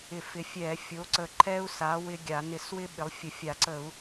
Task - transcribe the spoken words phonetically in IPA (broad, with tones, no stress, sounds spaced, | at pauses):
ɪ˧˩˧ f ɪ˩˥ fʲ ɛ˧˩˧ fʲ o˩˥ ǀ ə˧˩ ǃʰ ɛ˦ u̯ s a˩˥ w ɪ˦ ɡʲ a˧˩˧ n ɪ˧˩˧ s w ɪ˦ ɓ ɪ˩˥ lˠ fʲ ə˧˩ fʲ a˧˩˧ ǀ ə˧˩˧ u̯